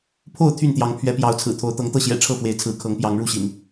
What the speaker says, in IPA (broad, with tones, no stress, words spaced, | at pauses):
pʰo˥˨ʊ̯ t̪ʰy˥˨nt̪jɑ˨˦ŋ pʰɥɛ˨˦pjɑ˨˦ʊ̯t͡sʰɹ̩˨˩t̪ʰo˨˦ʊ̯ t̪ɤ˨˦ŋt̪ɤ˥˨ɕjɛ̰˨˩ ʈ͡ʂʰɤ˥˨fwe˨˦ɪ̯t͡sʰɹ̩˨˦ kʰɤ˨˦ŋpjɑ˨˦ŋɻu˥˨ɕḭ˨˩n